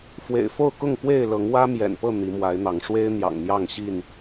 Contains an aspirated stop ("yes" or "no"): no